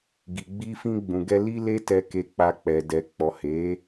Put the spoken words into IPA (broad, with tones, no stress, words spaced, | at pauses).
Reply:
ɡi˨ɡ͡bi˧fĩ˧ ɡ͡bũ˨ɡɛ˧ li˧ le˦tɛ˧ke˧k͡pa˧ k͡pɛ˨dɛ˨ k͡pɔ˨he˨˦